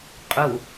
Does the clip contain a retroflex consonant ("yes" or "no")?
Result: no